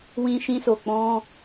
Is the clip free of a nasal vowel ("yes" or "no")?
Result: no